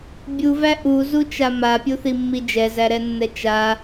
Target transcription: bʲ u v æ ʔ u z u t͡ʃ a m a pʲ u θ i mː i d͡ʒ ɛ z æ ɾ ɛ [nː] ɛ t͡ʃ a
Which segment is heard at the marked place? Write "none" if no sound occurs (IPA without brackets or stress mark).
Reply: nː